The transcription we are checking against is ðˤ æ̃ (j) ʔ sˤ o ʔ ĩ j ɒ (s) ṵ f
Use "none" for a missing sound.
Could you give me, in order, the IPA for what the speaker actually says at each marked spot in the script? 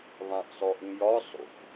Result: none, sˤ

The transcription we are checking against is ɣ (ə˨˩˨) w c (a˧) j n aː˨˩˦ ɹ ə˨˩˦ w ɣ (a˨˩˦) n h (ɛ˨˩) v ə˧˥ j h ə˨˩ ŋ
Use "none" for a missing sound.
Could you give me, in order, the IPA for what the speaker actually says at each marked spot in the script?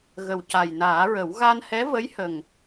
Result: ə˨˩, a˨˩, a˧, ɛ˧˥

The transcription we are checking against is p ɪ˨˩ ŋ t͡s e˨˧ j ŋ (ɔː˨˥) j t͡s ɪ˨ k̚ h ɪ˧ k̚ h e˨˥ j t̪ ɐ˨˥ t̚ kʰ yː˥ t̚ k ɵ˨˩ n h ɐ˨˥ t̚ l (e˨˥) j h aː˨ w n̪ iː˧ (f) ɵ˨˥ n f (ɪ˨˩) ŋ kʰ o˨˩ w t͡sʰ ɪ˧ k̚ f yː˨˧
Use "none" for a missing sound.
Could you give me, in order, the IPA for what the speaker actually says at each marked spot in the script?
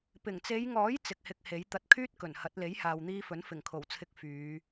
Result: ɔː˨˥, e˨˥, f, ɪ˨˩

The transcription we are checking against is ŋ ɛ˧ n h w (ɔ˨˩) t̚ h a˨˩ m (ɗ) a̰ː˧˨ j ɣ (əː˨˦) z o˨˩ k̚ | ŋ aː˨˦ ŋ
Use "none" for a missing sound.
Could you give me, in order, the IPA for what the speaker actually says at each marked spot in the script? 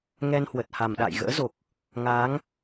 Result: ə˨˩, ɗ, ə̰ː˧˥

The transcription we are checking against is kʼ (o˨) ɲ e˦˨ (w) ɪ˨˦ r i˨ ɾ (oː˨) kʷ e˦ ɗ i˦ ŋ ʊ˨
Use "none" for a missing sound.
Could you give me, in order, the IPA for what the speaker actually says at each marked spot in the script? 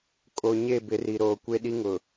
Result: o˨, b, oː˨

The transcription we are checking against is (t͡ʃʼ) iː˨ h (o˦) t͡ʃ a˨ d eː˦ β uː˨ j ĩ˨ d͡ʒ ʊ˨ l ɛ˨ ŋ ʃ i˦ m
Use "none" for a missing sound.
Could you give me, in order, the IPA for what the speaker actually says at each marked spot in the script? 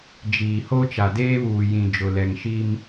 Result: d͡ʒ, o˦

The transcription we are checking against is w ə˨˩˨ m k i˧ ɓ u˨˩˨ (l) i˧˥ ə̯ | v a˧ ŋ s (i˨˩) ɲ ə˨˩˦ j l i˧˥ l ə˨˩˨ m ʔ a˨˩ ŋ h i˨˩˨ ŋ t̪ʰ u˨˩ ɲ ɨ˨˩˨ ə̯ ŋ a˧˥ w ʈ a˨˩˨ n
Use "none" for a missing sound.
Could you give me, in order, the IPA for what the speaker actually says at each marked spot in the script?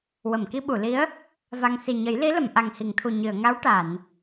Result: l, i˨˩

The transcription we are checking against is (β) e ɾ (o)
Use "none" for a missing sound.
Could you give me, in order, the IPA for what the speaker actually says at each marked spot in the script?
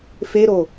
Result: f, o

